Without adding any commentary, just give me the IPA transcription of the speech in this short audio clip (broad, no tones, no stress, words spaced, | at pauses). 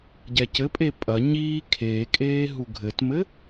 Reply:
ɟɛcɘpʼe pʼɐ ɲiː kʰeːkʼeː ɦuɡʱɘtmɘ